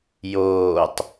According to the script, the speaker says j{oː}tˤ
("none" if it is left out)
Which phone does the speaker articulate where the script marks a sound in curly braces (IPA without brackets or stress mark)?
oː